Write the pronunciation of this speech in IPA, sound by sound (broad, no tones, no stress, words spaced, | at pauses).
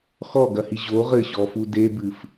xɔɡɐhi ʑo ʁɘɕɔfu debɨf